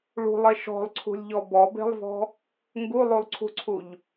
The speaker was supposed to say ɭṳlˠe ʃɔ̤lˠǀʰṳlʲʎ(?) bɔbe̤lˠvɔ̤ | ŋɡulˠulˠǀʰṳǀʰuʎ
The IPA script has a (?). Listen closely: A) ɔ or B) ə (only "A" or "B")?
A